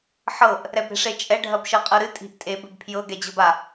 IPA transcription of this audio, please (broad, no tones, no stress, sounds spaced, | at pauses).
ħ ɤ ʔ | ɾ ɛ b ɾ e̤ ʂ e t͡ʃʼ ɛ ɖʱ ɐ b ʃ ɤ qʼ ɤ ɾ ɨ tʼ i̤ ʔ tʼ e b ɘ b pʰ j ɤ ɡ ɛ d͡ʑ ɤ b a